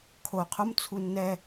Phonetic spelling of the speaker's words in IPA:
kʰ o qʰ o m t͡sʰ u nː ɛ

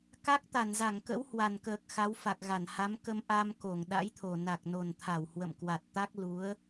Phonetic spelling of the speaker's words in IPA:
k a˦˥ k̚ t̪ a˧˩ n z a˧˩ ŋ k ə̰˧˥ w h w a˨˩ n k əː˨˩ k̚ x a˨˦ w f a˨˩ k̚ ɣ a˧˩ n h a˨˦ m k ə˧ m ʔ a˧ m k o˧˩ ŋ ɗ a̰˧˥ j t̪ʰ o˨˩ n a˨˩ k̚ n o˨˩ n t̪ʰ a˧˩ w h w ə̰˧˨ m k w a˨˩ t̚ t̪ a˦˥ k̚ l u˨˦ ə̯

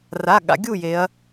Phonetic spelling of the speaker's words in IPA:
r a˩˧˩ ɠ a̰˩˧ ɡʲ u˥˩ j e˩˧ ɐ̯

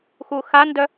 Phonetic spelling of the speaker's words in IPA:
x u x a n d œ

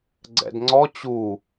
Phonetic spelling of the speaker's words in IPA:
ɡ͡ǀ ɛ̰ d ŋ͡ǀ ɔ t͡ɕ u

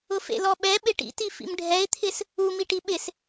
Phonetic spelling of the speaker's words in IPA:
ʊ f ḛ l ɔ ɓ ɛ ɓ ɪ ʈ ḭ t i f ḭ m ɖʱ ɛ ɪ̯ t̪ʰ ɪ s | u m i ʈ i ɓ ɪ s

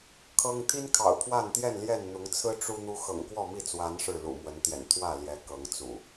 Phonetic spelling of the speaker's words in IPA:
kʰ ɤ˦ ŋ t̪ʰ i˦ n kʰ ɑ̰˨˩ ʊ̯ pʰ w a˥˨ n t̪ j ɛ˥˨ n l j ɛ˥˨ n n̪ ʊ˨˦ ŋ t͡sʰ ɹ̩˦ ʈ͡ʂ u˦ n̪ u˦ x ɤ̰˨˩ ŋ k w ɔ˥˨ m i˥˨ t͡s w a˨˦ n ʂ ɻ̩˥˨ l ṵ˨˩ m w ə˨˦ n t̪ j ɛ̰˨˩ n t̪ʰ w ä˥˨ l j ɛ˨˦ k ɤ˨˦ ŋ t͡s ṵ˨˩

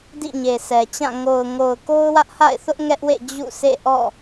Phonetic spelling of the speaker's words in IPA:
d ḭ˦˨ ɲ e˨ s ɛ˨ t͡ɕ ã˦˨ ŋ o˨ ʊ̯ ŋ o˨ ʊ̯ k o˦ ʊ̯ w ä˦ ʔ h a̰˦˨ ɪ̯ θ ʊ˦ ʔ ŋ ɛ˦ ʔ w ḛ˦˨ d͡ʑ ṵ˦˨ sʰ ḛ˦˨ ʔ ɔ̰˦˨

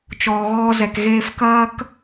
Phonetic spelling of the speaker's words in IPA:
t͡ʃ ɔː˧ ɣ ɔː˦ z ɛ˧ k ɣ eː˧ f k ɐː˦ k

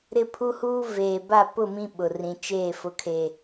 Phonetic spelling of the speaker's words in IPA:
ɾ ɪ˦ pʰ u˦ h uː˦ v eː˨ b a˦˨ p ʊ˦˨ m ĩ˦ ɓ ʊ˨ r ĩ˨ t͡ʃ eː˦˨ f ʊ˨ kʰ e˨

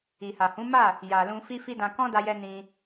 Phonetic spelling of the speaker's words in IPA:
i˨ h a˨ h ũ˨˦ m a˦˨ | j a˨ l ũ˧ f i˦ f i˦ d ã˧ k ɔ̃˦ d a˧ j ɛ˧ n ĩ˧

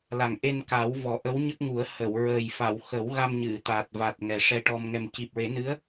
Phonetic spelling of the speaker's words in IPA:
l a˨˩ ŋ ʔ e˧ n k a˨˩˦ w v ɔ˨˩˦ ʔ ə˧˥ w ɲ ə˦˥ k̚ ŋ u˨˩˦ ə̯ h ə˨˩˨ w ɹ əː˨˩ j f a˨˩˨ w x ə˨˩˦ w ɣ a˧ m ɲ ɨ˨˩˨ t̪ a˨˩ t̚ v a˨˩ t̚ ŋ ɛ˨˩ ʂ ɛ˧ ʈ ɔ˧ m ŋ ɛ˨˩ m c i˨˩ p̚ ɹ e˨˩˦ n ɨ˧˥ ə̯

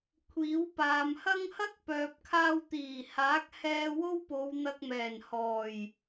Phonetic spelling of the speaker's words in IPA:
kʷʰ iː˨˥ w p aː˨ m h ɐ˥ ŋ h ɐ˥ k̚ p œː˨ p̚ kʰ aː˧ w t̪ iː˨˩ h aː˨˥ k̚ h ɛː˧ w o˥ w p o˨˧ w n̪ ɐ˧ k̚ m ɛː˨˩ n h ɔː˨˩ j

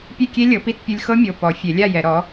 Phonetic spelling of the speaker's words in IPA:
pʲ e˥˨ kʲ e˦˥ lʲ ɤ˩˥ p i˥˨ t pʲ u˧ lʲ x ɤ˦˥ mʲ o˩˧˩ p ɔ˨˩˦ fʲ e˨˩˦ lʲ a˥˨ j ɛ˨˩˦ ɾ ɔ˩˥

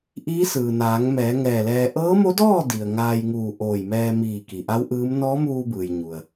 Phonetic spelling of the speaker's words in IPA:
ʔ iː˧˥ s ɯː˩ n aː˩˧ ŋ m ɛː˩˧ ŋ ɛː˧˩ l ɛː˧ ʔ ɤː˧˥ m o˧˥ d ɔː˥˨ d i˩ ə̯ ŋ aː˧ j ŋ uː˧˩ ʔ oː˧˩ j m ɛː˧ m iː˧˩ k i˩ ʔ a˧˥ w ʔ ɯː˧˥ m n ɔː˧˥ m uː˧ b ɯː˩ j ɲ u˩ ə̯

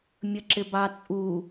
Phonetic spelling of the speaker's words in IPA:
mʲ ə ǁ ɪ b ɑ t͡sʼ u

